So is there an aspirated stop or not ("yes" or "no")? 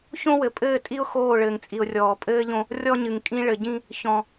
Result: no